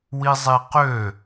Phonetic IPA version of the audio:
w i zˤ i q ø

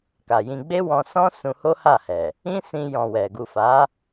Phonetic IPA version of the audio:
k a˨ j ĩ˧ ɡ͡b e˦ w ɔ̃˧ s ɔ̃˦ s ũ˧ h o˦ h a˦˨ h ɛ˨ | ĩ˦ s ĩ˧ j ɔ̃˨ w ɛ˨ ɡ u˨ f a˨˦

